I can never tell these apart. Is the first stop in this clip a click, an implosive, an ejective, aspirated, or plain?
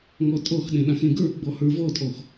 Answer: ejective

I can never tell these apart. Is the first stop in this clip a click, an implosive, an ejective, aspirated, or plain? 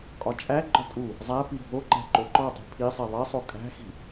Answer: ejective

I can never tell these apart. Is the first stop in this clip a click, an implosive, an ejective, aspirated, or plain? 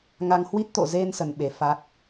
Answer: plain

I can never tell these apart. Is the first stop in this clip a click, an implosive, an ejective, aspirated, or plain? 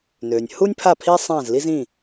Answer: aspirated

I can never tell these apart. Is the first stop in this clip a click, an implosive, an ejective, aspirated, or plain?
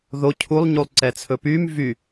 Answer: aspirated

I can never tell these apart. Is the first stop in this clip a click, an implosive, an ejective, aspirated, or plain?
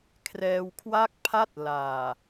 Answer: aspirated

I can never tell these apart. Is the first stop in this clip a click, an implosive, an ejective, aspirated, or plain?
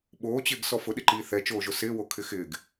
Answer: implosive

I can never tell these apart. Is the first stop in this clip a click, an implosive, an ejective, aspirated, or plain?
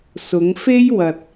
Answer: plain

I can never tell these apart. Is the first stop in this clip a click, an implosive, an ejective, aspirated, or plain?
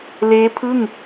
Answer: aspirated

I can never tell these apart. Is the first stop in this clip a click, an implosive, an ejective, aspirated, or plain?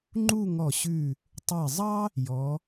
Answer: click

